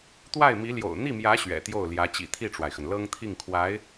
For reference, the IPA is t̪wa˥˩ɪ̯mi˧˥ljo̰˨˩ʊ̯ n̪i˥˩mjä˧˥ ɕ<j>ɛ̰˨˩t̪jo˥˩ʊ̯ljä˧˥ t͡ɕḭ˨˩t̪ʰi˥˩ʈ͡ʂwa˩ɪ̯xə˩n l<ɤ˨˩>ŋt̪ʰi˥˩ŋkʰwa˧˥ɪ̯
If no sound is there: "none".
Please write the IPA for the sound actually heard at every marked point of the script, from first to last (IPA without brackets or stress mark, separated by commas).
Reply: ɥ, ɤ˥